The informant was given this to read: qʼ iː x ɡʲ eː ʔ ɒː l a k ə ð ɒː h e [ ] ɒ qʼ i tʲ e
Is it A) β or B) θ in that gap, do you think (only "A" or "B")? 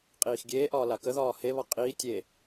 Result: A